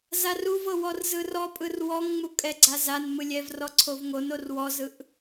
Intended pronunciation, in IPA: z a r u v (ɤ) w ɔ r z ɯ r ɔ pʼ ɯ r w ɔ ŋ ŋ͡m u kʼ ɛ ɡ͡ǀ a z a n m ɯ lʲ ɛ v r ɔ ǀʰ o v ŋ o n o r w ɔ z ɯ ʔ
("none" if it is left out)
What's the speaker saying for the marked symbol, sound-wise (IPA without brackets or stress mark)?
ɤ